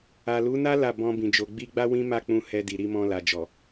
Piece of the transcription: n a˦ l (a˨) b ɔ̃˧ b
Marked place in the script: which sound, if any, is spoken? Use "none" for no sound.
a˦˨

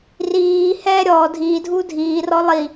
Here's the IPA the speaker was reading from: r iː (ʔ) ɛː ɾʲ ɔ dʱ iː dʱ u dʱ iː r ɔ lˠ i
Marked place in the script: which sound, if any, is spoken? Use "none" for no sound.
h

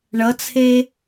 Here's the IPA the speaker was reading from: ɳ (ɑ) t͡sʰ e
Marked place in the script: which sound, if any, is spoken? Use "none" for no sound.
ʌ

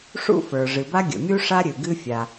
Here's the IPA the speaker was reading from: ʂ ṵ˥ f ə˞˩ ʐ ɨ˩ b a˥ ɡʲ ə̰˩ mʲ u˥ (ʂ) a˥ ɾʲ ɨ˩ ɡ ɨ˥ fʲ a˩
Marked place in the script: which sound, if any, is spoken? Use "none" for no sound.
ʂ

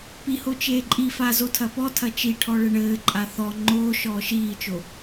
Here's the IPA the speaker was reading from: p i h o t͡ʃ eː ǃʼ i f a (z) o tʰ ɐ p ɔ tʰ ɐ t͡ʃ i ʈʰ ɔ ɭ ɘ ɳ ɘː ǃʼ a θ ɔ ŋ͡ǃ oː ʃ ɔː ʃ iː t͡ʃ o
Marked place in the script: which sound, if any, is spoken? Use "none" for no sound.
z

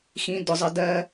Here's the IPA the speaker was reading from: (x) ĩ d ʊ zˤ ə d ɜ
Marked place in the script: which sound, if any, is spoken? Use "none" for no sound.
x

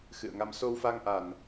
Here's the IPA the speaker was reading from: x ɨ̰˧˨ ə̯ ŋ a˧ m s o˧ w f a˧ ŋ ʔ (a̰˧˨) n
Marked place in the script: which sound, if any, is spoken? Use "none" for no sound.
a˨˩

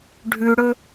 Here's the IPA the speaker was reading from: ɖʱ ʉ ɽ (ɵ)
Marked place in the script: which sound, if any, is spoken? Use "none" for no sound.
ɵ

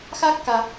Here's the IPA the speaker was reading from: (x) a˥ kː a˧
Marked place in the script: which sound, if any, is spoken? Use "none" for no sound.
x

